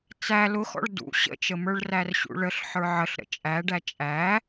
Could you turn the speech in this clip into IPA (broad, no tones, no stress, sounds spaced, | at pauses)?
t͡s æ l ʊ x ɔ̰ ɭ d ṵ ɕ ə̰ t͡ʃ ə m ə˞ ɭ r æ r ɕ ṵ ɭ ə ɬ ħ ə˞ ʕ ə ɬ ɾ ə̰ t͡ʃʼ æ ɖ æ t͡ʃʼ æ